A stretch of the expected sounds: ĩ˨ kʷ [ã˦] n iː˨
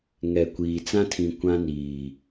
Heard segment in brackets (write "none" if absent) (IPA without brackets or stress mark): ã˦